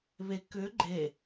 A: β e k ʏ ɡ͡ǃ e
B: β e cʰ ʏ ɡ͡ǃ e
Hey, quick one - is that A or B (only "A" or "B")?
A